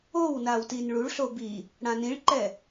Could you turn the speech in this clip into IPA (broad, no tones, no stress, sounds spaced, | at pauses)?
o w n a w t i n ɭ u ɭ ɬ o b i | ɽ ã n ĩ ɭ ǃ ɛ